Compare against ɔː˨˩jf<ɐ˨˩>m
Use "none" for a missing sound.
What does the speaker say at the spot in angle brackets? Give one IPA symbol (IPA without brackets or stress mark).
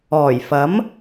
ɐ˨˥